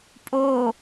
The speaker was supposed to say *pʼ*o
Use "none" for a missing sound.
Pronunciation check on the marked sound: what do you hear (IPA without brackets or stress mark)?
pʼ